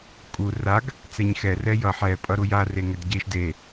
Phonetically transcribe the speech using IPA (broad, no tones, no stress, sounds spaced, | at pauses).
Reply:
kʼ u r a ɡ | t͡s ɛ ɲ x ɛ r ɛ j ʌ ħ ɛ pʼ ʌ ɾ u j a r e ŋ ɛ d ɟ e ʃ d e